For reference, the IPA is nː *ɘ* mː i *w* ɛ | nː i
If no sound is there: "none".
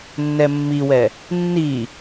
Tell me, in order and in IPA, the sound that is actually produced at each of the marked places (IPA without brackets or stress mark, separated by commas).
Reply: ɛ, w